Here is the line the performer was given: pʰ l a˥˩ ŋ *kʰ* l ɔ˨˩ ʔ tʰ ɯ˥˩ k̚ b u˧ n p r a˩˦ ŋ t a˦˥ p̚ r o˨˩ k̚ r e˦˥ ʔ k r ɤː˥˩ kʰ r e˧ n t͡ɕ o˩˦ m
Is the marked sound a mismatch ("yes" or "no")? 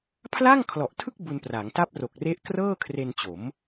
no